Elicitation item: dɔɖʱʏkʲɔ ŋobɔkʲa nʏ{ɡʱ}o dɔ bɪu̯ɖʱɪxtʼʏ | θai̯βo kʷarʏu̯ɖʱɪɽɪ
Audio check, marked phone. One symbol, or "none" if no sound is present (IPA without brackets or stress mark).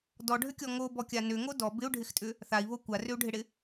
ŋ